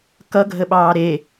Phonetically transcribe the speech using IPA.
k ʌ ɡʱ ə ɓ ɑː ɾ e

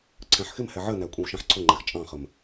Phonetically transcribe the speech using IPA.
ǀʰ æ̃ ħ x ɪ m h ɛ ʕ ɜ n æ kʷʼ ɛ̃ w ʃ æ̃ ħ ǀʰ ʊ ŋ͡ǃ æ x t͡ʃʼ ɑ̃ χ ə m

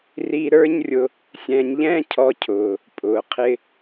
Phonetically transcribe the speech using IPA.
r i˧ ɾ ə˞˦ ɲ rʲ ʊ˧ | sʲ ɛ̃ː˧ ɲ ʎ ɛ̃ː˦ cʰ ɔ˦ cʰ ʊː˧ | pʼ ʊː˨ qʰ ɪ˧

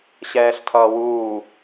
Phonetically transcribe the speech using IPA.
ɕ ɛː ɬ tʰ ʌː w uː

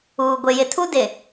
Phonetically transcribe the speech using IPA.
uː˨ ɡʷ ɪ˨ j ɪ˨ tʰ u˦ d ɪ˨

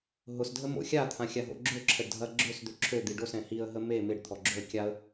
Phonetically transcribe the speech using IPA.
ɦ ʊ s dʱ ə m o̰ xʲ a t̪ʰ ã xʲ a ɦ o̰ ɡ͡ǁ ø ǁʰ ə ɖ dʱ ɐ ɡ͡ǁ ø s d̪ ø ǁʰ ø d̪ i ɖ o s ɛ̃ h i ə̯ ɦ ə m e m ɪ ɖ t̪ʰ ɔ ɡ͡ǁ o ə̯ kʲ a ə̯

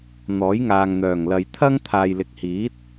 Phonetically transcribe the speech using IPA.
n̪ ɔː˨˥ j ŋ aː˨ ŋ n̪ œː˨˩ ŋ l ɐ˨ j t̪ʰ ɐ˥ ŋ t̪ʰ aː˨ j l ɪ˨ k̚ h iː˨˥ t̚

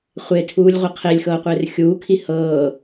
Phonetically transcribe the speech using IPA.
χʷ e tʰ uː lʲ ʁʷ ɤ qʰ e lʲ x ɤː qʷ eː r xʲ uː kʰ i h ɤː

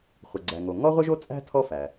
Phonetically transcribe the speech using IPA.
χʷ ə˩ ɡ͡ǀ æ˩ ŋ o˩ ŋ ɔ˥ ʁʷ ə˥ ʒ o˥ t͡sʼ æ̤˥ tʰ ɔ˥ f æ˩

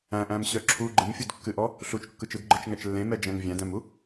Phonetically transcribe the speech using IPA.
æ̃ ʔ æ̃ m ɕ œ ǁʰ u ɡ͡ǃ ɨ m fʲ u d kː ɨ ʔ ɔ | ɬ u t͡ʃ kː ɯ t͡ʃ ɯ d ɡ͡ǃ ɯ t͡ʃ ŋ æ t͡ʃ lː ẽ m ɛ d͡ʒ æ̃ ŋ vʲ æ̃ d æ̃ m u

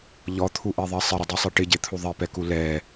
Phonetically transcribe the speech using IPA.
ʎ ɔ t̪ʰ u ʔ e ðˤ ɛ sˤ ɪ ɾ ɪ dˤ i sˤ i ʈ ɪ ɟ e t̪ʰ u ðˤ i p ɛ k u l ɛ

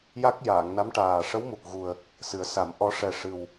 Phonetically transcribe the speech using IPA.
j a˦˥ k̚ j aː˨˩˨ ŋ n a˧˥ m ʈ aː˨˩ ʂ ə˧˥ w m u˨˩ k̚ ɣ u˨˩ ə̯ | s ɨ˨˩˦ ə̯ s a˨˩˦ m ʔ ɔ˧˥ ʂ ɛ˨˩ ʂ ɨ˨˩ w

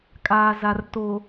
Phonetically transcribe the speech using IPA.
kʼ aː˨ z a˨ r t o˨

